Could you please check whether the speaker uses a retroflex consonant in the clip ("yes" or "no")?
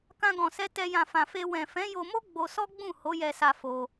no